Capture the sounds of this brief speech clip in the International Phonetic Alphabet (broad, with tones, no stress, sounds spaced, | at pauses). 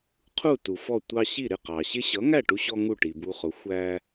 qʰ u˥˩ t u˩ f ɔ˥˩ tʷ ɑ˧ ɕ i˥˩ ɾ ɪ˥˩ q ɑ˩ ɕ ɪ˥ ɕ ʌ˩˥ ŋ æ˥˩ ʈ u˧ ɕ ɔ˧ ŋ u˥˩ ʈ i˩ b u˧ χ ʊ˩˥ xʷ æ˧